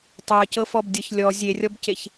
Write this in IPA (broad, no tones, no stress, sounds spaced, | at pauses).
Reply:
tˤ e ə̯ c ɤ f ɔ b dʲ ɤ ç lʲ ɔ zʲ e rʲ ɔ b c e ç